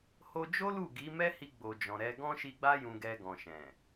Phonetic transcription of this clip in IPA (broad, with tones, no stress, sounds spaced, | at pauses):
h o˧ d͡ʒ o˦ l u˦˨ ɡ i˨˦ m ɛ˦ h i˧ ɡ͡b o˨ d͡ʒ ɔ̃˨ ɾ ɛ˧ ɡ ɔ̃˦ ʃ i˧ ɡ͡b a˦ j ũ˧ ɡ ɛ˧ ɡ ɔ̃˨ ʃ ɛ̃˨